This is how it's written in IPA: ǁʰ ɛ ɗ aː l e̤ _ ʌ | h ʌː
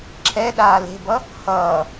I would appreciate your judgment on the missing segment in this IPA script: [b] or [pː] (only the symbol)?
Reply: b